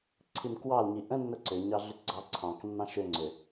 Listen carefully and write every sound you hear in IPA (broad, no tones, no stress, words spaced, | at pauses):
ǀʰimkwɑlɲi ʔə̃nːə ǀʏɲɑ ɮʏtɡ͡ǀɑǀʰɑ̃knːɑ̃ ʃʏ ŋ͡ǀʏ